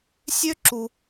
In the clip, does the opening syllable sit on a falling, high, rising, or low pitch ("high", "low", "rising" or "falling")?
high